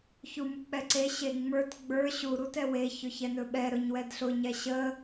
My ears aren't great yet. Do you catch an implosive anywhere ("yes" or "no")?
yes